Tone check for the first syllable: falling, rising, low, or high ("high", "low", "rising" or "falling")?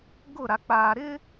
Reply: falling